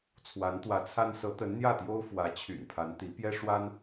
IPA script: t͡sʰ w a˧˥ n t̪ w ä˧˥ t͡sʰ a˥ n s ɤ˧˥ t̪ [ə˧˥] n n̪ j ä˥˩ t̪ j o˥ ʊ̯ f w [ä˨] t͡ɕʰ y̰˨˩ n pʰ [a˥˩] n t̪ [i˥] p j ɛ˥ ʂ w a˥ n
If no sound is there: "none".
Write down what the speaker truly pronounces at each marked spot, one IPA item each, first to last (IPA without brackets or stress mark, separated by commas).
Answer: ə˧˥, ä˧˥, a˧˥, i˧˥